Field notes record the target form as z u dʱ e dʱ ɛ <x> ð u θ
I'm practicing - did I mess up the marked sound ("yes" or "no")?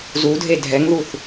yes